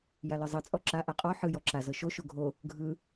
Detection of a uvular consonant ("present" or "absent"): present